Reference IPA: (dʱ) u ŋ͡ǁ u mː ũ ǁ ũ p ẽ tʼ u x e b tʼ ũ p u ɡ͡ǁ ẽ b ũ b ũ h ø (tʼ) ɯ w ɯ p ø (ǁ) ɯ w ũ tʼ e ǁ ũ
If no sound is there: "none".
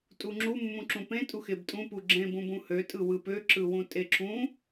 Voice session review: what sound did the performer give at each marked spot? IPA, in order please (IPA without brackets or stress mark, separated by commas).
tʼ, tʼ, ǁ